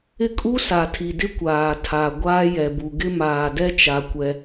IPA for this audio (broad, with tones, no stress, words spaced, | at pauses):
ɪ˦kʼu˦ sa˨tʰi˨dɪ˦ kʷaː˨tʰa˨ ɡʷaː˦jɛ˨bu˨ ɡɪ˦maː˨dɛ˦t͡ʃa˨ kʷɛ˦